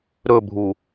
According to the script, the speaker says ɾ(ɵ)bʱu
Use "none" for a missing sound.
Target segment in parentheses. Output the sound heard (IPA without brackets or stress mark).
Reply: ɵ